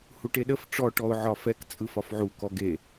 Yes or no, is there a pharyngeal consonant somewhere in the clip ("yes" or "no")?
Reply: yes